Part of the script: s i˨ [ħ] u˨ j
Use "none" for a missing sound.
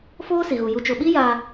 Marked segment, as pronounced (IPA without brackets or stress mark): ɣ